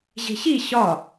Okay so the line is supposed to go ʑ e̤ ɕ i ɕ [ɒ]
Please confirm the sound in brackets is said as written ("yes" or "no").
yes